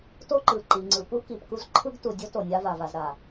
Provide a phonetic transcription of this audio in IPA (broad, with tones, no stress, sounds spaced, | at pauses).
t o˦ ǃ ɯ˨ ǃ i˨ ŋ͡ǀ ɯ˨ p u˦ k i˨ p k u˦ z ǃʰ ɯ˦ ɡ t u˨ dʲ o˦ t o˨ nʲ a˦ v a˨ v a˨ z ɾ a˨